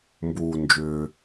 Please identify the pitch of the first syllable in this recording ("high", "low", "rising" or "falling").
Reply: low